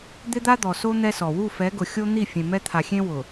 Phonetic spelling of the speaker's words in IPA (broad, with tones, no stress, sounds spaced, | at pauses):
d̪ ɪ˦ d̪ a˦ d̪ ɔ˨ s o˦ n̪ ɛ˦ s ɔ˨ w u˦˨ f ɛ˨˦ ɡ ʊ˨ xʲ o˦ n̪ i˦˨ fʲ ẽ˨ m ɛ˦ t̪ʰ a˨ xʲ ẽ˦ w ʊ˨